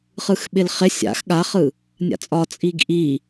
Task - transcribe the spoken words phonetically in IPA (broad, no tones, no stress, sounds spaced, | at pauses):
χ ɯ x ɓ ɪ l χ ɪ sʲ a̰ x ɠ a χ ɯ | nʲ a̰ t͡sʼ ɒ t͡sʼ i ɡ ʔ i